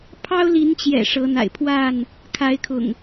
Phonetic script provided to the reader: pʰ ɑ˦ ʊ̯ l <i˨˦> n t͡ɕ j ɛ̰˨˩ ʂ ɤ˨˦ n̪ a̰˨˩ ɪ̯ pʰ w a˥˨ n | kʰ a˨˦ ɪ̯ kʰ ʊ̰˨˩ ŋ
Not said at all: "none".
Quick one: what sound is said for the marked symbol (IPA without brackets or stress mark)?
i˨˦